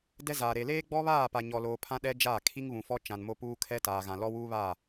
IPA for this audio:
dɛ˦zaː˨ɾe˨ leː˦ɡ͡bɔ˦βaː˦˨pa˨ ɲɔ˨loː˨ pʰã˦ɗɛ˦ d͡ʒaː˦˨kʰi˦ŋβũ˨fɔ˦ t͡ʃã˨nmo˦puː˦ kʰɛ˦taː˨ɣã˨ lɔ˦wuː˦βaː˦˨

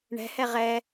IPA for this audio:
ɳɛ̤hɛ ʁɛ

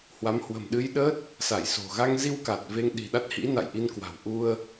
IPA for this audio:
hwa˨˦mhwə̤˨˩m ɗɨ˧j ɗə˦˥t̚ | sa˧˩jso̤˨˩ɣa˧ŋzi˧w ka˨˩t̚ve˧ŋ ɗi̤˨˩ɗa˦˥t̚hḭ˧˥ na̰˧˨jʔi˧nkwa̤˨˩w ʔu˧ə̯

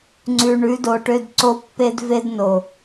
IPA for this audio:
ŋ͡ǀʉ˧ ɳʉ˨˦do˨ʈø˧d ǀo˦pːe˦d ve˦dno˨

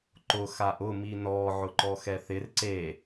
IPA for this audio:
ǃʊ xaʔʊ minɔ ʕʊǃɔxɛθɪr ǀe

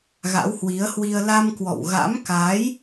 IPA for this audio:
ɣa̰˧˥whwi˨˦ə̯hwi˧ə̯ la˧mkwɔ̰˧˨w ɣa̰˧˥mka˨˦j

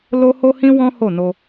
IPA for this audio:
lo˦ho˦hĩ˦wɔ̃˦ ho˦˨no˧

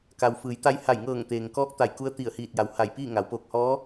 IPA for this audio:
ka˩w fɯː˩˧jt̪a˧jha˧˩jŋɤː˧˩ŋ t̪eː˩ŋkɔː˧˥k̚t̪a˧˩j ku˧˥ə̯t̪i˧˩ə̯hiː˧˩t̚ja˩˧w ha˧˩jpiː˥˨ ŋa˩˧w poː˧˩k̚hɔː˧˥

